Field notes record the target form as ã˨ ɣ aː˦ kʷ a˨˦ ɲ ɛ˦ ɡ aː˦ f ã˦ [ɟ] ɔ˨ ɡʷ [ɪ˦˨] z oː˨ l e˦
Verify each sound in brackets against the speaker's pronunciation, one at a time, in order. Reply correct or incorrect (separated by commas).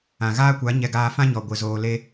incorrect, incorrect